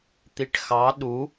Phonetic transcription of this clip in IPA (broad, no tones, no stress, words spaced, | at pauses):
t̪iʈxɑ ɗu